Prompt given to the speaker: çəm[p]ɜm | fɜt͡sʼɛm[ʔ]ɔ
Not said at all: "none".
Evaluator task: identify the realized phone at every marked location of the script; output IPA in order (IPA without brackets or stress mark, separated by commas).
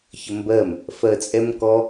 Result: b, k